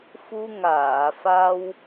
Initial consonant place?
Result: labial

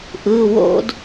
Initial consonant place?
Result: glottal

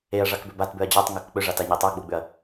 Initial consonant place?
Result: retroflex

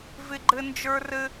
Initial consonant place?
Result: labial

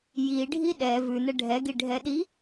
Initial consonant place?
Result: palatal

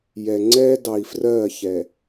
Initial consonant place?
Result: palatal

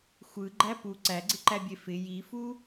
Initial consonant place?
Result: velar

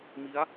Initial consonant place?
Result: labial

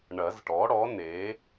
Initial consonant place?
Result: retroflex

